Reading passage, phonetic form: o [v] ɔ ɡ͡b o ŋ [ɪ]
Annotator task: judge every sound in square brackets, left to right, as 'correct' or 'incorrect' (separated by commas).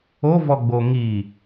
correct, incorrect